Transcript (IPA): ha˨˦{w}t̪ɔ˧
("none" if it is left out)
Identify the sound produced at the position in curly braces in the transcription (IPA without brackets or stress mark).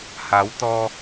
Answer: w